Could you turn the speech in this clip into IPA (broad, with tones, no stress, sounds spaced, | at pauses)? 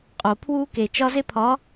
qʼ o˨ pʰ w u˦ k e˨ t͡ʃ ɒ˦ z e˦ pʰ ɒ˨˦